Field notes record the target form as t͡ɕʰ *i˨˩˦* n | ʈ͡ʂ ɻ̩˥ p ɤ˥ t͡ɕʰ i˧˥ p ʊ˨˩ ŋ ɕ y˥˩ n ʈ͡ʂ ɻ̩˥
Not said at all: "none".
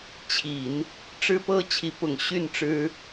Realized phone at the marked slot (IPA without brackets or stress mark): i˨˩˦